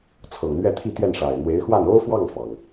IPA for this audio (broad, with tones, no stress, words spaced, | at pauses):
t͡sʰɤ˨˩ŋn̪ɥɛ˥˧t̪ʰi˥˧t̪jɛ˥˩n ʂa˨˩ɪ̯n̪we˧˥ɪ̯xwa˥˩n o˥ʊ̯fwɑ˥˩ŋfɑ˩ŋ